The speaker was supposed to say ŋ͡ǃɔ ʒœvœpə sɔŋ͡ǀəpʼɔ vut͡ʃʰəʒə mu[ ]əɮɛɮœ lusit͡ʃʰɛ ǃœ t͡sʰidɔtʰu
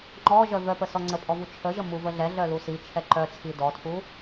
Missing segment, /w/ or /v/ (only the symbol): v